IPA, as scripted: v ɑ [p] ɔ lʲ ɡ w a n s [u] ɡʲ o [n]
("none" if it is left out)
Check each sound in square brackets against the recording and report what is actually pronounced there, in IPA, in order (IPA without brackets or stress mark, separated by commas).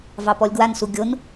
p, u, n